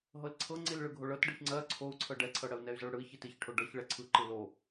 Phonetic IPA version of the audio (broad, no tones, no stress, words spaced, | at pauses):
ɦɤlǀʰɤŋ͡ǀil ɭɯɡʱoɭɤt ɖɯçŋ͡ǀɜ ǀʰou̯ǀʰɤ ɖɛǀʰɤ ɽɜu̯nɛy̯zɤɭɽɯi̯ çitiçʈʰo ɖɤç ɭɛǀʰɯ ǃɯlo